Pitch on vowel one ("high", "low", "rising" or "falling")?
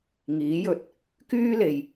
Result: rising